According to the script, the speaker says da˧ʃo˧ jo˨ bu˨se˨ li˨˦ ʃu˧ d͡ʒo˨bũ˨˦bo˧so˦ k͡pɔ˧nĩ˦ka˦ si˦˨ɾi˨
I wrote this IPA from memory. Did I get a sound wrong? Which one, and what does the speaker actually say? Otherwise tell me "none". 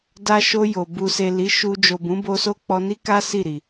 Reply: ĩ˦ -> i˦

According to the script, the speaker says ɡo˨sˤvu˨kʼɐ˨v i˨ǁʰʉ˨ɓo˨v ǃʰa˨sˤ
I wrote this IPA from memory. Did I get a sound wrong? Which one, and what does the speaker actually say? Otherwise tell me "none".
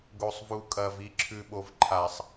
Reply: none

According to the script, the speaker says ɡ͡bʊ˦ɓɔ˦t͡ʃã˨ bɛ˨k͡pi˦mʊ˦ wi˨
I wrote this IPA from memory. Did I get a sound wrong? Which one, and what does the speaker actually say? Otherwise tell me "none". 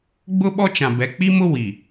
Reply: none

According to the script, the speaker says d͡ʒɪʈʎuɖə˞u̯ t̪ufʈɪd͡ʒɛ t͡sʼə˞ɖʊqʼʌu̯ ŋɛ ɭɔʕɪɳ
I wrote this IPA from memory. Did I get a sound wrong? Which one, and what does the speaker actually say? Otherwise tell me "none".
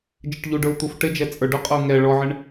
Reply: none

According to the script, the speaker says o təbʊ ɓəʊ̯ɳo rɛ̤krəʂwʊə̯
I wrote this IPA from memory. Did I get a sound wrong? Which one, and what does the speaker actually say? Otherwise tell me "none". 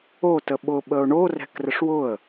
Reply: b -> ɓ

